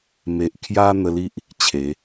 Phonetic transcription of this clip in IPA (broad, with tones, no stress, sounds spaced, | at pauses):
m e˨ ʔ kʰ j a˧ n̪ ə˧ l i˦ ʔ | t͡ɕʰ e˨˦